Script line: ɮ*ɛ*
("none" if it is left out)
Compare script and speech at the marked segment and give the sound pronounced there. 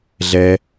ɛ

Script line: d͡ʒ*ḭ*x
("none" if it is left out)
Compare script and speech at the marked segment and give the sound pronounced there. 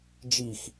i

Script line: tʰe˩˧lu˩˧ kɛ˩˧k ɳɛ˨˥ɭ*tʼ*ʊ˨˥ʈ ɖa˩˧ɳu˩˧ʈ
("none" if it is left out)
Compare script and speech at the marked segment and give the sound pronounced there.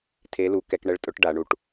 tʼ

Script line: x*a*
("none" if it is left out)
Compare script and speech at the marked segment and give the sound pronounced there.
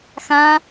ã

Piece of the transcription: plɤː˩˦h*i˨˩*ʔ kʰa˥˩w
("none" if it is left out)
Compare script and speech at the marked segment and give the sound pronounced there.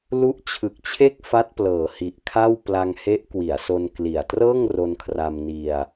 i˨˩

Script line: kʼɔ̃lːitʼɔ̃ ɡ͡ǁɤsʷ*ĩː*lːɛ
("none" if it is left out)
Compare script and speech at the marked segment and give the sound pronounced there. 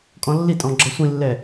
ĩ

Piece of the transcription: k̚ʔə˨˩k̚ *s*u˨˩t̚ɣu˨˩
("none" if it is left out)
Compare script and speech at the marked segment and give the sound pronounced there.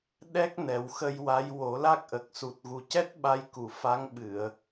s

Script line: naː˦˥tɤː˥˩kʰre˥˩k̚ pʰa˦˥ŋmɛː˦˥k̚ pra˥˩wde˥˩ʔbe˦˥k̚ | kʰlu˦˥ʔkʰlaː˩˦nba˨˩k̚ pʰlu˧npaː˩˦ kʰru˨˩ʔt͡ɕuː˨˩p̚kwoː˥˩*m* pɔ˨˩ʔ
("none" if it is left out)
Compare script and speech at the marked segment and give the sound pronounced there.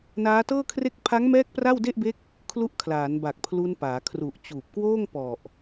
ŋ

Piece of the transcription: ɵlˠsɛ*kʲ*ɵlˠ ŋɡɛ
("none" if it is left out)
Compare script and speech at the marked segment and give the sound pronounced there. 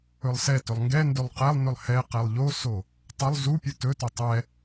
t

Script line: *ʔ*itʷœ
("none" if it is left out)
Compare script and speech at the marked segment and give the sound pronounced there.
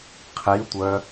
qʰ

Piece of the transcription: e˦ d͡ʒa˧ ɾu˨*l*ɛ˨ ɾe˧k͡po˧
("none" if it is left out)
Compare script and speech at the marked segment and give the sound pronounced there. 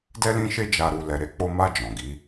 l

